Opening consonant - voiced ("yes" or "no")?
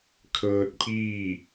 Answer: no